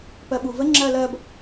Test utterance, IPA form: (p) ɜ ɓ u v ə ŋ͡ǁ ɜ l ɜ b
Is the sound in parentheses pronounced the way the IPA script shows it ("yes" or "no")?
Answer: yes